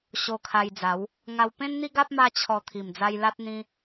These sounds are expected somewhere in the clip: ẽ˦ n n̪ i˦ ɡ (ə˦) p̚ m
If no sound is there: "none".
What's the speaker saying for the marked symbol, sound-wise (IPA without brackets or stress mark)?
a˦